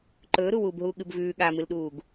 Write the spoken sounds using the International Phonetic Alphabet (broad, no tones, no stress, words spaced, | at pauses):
ǃɵːɾuwuːbɦuː ɠɨbvʉː ɠamɨlɗuːɡ